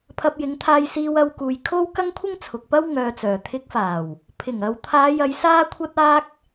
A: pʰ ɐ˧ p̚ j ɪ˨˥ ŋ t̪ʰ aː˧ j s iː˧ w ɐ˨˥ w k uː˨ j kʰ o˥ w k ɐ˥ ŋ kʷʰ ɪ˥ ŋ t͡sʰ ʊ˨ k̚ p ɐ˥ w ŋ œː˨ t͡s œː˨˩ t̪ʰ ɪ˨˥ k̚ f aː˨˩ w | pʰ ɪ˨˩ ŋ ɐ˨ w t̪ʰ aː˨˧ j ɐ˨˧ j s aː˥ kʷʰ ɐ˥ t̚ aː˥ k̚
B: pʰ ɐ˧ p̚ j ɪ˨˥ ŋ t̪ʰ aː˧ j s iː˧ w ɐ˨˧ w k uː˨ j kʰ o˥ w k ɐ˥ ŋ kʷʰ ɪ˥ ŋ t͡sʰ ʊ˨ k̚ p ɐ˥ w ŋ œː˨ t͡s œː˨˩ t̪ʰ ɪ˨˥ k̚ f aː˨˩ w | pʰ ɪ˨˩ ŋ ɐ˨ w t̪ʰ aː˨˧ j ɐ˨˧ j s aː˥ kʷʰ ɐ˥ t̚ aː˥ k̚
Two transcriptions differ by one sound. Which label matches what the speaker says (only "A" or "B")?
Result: B